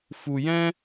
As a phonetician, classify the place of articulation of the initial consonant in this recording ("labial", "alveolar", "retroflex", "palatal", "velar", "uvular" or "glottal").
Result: labial